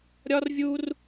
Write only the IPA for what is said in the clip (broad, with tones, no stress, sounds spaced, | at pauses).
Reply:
ɾʲ ɒ˦ r vʲ u˦ r